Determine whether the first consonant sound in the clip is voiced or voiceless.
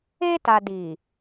voiceless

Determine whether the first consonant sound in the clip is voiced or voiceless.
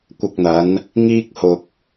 voiceless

